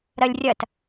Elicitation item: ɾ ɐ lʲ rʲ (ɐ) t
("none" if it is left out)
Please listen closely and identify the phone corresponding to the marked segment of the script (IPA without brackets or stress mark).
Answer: ɐ